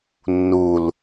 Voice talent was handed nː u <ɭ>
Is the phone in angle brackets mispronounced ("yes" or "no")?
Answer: yes